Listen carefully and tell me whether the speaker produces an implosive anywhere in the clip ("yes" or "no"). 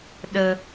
yes